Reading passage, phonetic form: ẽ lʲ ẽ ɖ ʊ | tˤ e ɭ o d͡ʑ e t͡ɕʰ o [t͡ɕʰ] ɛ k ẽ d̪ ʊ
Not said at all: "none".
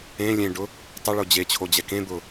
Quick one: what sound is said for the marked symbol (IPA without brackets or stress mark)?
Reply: d͡ʑ